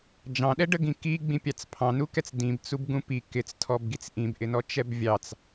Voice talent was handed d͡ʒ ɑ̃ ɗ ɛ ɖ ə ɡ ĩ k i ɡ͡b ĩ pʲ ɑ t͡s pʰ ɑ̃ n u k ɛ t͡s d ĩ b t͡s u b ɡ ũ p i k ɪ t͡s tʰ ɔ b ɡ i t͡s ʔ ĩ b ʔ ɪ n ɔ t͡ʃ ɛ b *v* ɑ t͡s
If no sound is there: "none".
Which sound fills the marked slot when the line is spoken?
vʲ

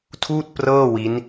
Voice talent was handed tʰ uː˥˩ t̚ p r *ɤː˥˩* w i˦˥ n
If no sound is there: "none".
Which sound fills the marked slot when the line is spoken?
ɤː˥˩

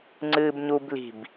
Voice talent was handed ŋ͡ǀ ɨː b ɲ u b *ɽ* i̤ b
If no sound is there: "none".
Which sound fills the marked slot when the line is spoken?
l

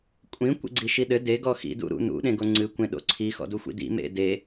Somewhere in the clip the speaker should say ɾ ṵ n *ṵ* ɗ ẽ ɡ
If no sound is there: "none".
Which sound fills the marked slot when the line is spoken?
ṵ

